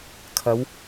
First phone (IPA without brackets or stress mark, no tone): kʰ